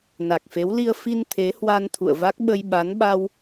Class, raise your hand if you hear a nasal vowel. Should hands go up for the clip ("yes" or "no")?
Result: no